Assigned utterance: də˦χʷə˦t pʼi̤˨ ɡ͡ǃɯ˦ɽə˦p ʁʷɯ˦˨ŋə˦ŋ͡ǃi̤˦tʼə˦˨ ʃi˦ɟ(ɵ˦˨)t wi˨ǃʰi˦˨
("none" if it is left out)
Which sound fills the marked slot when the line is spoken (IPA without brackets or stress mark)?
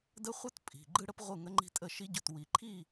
ɵ˦˨